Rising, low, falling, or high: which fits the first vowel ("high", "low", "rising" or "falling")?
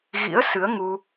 rising